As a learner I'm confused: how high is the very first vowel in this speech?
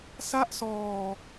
low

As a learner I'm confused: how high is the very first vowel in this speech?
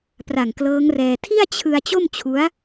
low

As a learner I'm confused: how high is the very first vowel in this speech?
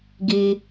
high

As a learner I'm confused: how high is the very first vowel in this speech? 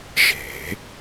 mid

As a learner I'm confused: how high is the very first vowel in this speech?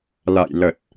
low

